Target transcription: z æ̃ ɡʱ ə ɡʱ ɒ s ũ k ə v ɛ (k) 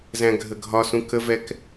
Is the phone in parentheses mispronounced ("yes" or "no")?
no